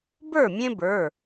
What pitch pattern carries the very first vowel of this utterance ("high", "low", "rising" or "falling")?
falling